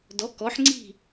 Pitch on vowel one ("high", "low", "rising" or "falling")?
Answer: rising